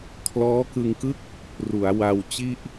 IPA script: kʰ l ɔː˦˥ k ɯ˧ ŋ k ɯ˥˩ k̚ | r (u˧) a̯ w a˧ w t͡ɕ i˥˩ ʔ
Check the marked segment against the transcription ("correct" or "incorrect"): incorrect